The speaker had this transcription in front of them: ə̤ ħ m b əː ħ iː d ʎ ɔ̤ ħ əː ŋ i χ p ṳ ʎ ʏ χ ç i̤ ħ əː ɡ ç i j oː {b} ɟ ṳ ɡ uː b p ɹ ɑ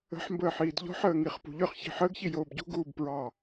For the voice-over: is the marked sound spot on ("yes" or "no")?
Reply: yes